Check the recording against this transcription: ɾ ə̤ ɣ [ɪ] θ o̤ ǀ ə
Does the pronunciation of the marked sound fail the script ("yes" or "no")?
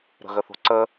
yes